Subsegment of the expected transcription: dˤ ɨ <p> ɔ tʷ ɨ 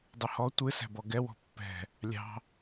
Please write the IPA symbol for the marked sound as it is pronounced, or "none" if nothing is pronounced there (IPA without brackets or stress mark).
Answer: h